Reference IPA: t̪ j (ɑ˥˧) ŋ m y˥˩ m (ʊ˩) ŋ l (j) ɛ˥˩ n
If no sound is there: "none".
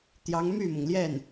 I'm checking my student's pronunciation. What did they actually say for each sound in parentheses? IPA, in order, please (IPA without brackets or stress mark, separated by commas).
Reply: ɑ˧˥, ʊ˩, j